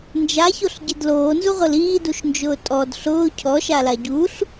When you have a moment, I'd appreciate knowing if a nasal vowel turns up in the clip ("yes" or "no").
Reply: no